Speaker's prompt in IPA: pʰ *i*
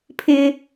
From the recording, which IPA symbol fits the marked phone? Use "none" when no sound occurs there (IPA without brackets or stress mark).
ɪ